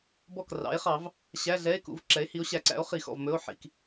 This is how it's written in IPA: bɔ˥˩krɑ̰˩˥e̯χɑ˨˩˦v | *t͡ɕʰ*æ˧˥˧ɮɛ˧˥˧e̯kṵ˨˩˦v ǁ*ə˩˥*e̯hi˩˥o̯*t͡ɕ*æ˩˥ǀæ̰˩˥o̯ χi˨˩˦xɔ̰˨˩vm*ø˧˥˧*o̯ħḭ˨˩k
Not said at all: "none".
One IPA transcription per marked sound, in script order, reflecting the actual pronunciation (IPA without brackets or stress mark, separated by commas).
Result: ɕ, ɛ˩˥, ɕ, ɵ˧˥˧